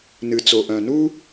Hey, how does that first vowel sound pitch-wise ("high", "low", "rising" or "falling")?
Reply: low